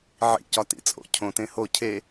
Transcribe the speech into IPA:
ʕ ḭ c ɒ t ḭ t͡sʼ o̰ cʰ õ t ẽ h o cʰ e

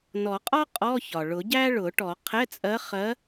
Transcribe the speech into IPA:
n ɔ˨˩˦ qʼ ɒ˥ qʼ ɔ˧˥˧ ç ɒ˩ ɭ ʊ˨˩˦ ɟ æ˥ ɭ ʊ˨˩˦ ʈ ɔ˨˩˦ qʰ ɛ˧˥˧ t͡sʼ ɜ˧˥ χ ɜ˧˥

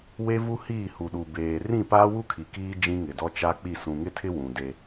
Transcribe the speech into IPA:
w e˦ v u˦ h iː˦˨ h u˨ ɗ u˨ b eː˨ r ĩ˦˨ p aː˦ w u˦ kʰ i˨ k iː˦ d͡ʒ ĩ˦ ŋ ɪ˨ d ɔ˦ t͡ʃ a˦ k͡p i˦˨ s ũ˨ ŋ ɪ˦ tʰ ɪ˦ w ũ˨ d e˦

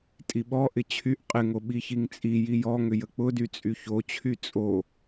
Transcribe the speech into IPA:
tʼ i ɓ ɔ ʔ ɪ t͡ɕʰ y ʔ qʼ ɪ ŋ o ɓ i ç i ŋ t͡sʼ i j i j ɔ ŋ ʏ j ə k͡p ʊ d y t͡sʼ y ç o t͡ɕʰ y t͡sʼ o

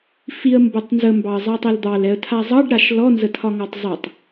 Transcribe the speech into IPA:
f i ə̯ m b ɐ tˤ n z ə m b ɑ ə̯ zˤ ɛ tˤ ɛ l d̪ ɑ l ɛ ə̯ tʰ a zˤ ɑ ɖ ɾ a ʃ l ɔ n z ə tʰ ɒ ŋ ɔ tˤ zˤ a tˤ

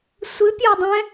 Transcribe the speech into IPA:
sʷ ɨ pʲ ɤ dˤ ɛ̃

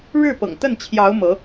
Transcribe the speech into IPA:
ɻ ɻ̩˥˩ p ɤ̰˨˩ ŋ t̪ ə˥˩ n t͡ɕʰ j ɑ˧˥ ʊ̯ m ɤ˧˥

